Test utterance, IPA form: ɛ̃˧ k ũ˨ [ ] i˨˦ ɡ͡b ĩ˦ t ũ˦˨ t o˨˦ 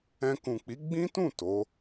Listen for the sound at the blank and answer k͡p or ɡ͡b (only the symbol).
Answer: k͡p